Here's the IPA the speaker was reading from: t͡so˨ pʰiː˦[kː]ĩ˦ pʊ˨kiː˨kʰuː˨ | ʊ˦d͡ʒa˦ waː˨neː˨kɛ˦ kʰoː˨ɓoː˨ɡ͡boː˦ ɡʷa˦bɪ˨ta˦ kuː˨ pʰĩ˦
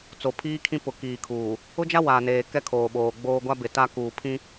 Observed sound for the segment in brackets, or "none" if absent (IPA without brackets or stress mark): kʰ